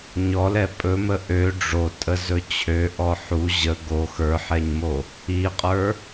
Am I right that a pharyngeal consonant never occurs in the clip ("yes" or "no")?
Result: no